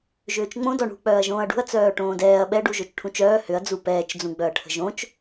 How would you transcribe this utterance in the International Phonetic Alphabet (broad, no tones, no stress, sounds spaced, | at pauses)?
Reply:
ʒ ʏː t͡ʃ ŋ͡m õ d ɔ ɳ ṳ k͡p œː ɐ̯ ʒ õː ɐ̯ ɖ ṳ ɐ̯ t͡s œː ʈ õː d ɛː ɐ̯ ɓ ɛ ɖ u ʒ o t͡ʃ ʈʰ ũ t͡ʃ œː h ʏ ɐ̯ d͡z u p ɛː t͡ʃ d͡z ũ ɡ͡b œ ɐ̯ ʈʰ ə̤ ʒ õ t͡ʃ